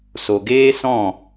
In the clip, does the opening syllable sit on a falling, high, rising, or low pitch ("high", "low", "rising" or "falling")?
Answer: low